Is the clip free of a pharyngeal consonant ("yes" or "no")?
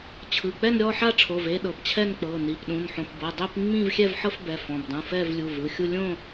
no